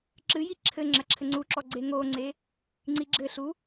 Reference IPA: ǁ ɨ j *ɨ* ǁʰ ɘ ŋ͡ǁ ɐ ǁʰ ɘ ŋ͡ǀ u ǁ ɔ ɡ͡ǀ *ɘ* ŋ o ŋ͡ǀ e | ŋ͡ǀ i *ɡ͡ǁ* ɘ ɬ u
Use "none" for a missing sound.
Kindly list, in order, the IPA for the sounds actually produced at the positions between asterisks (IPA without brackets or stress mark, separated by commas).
i, e, ɡ͡ǁ